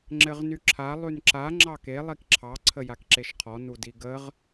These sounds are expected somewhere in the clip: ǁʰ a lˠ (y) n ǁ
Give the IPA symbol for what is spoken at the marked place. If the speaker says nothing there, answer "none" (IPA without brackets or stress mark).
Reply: y